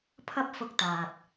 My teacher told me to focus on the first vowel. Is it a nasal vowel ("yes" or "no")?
no